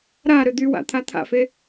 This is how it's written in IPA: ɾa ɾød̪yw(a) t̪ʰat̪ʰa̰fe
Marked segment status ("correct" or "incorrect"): incorrect